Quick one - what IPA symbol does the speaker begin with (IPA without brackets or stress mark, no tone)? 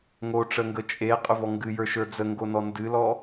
ŋ